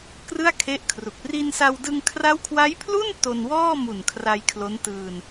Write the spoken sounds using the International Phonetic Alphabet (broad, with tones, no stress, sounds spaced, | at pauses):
k r ɯ˥˩ a̯ kʰ e˦˥ ʔ kʰ r u˨˩ k̚ r i˧ n s a˧ w d ɯ˧ ŋ kʰ r a˦˥ w kʰ w a˦˥ j pʰ l u˥˩ n t o˧ n w ɔː˥˩ m u˨˩ n kʰ r a˧ j kʰ l o˦˥ n t ɯː˧ n